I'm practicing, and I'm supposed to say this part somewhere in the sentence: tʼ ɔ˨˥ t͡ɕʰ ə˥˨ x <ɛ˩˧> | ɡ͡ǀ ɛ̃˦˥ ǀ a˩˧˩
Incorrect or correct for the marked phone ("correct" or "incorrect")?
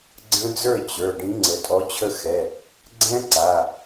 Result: incorrect